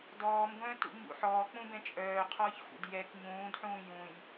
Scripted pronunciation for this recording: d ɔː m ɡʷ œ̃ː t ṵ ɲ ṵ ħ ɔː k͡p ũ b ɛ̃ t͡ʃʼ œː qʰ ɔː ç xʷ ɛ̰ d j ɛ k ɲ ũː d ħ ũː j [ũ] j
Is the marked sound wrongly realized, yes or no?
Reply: no